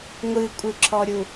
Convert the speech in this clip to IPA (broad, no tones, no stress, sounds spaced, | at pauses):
ŋʷ ɨ kʷʼ ɯ ǁʰ ɔ ɾʲ u